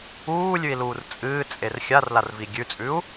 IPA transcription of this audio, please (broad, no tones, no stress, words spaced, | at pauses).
uːlʲʉi̯luːr t͡sʼɨːt͡sʼer xʲarlarvi ɡʲʉt͡sʼʉu̯